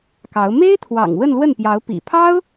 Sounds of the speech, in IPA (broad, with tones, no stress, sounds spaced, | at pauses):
k ɑ˧˥ ʊ̯ m e˥ ɪ̯ t̪ʰ w ɑ̰˨˩ ŋ w ə˥˧ n l w ə˥˩ n p j ɑ˧˥ ʊ̯ p ḭ˨˩ pʰ ɑ˥ ʊ̯